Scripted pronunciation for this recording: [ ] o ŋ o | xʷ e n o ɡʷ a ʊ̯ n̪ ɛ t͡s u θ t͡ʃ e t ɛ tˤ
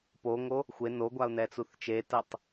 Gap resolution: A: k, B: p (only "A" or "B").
B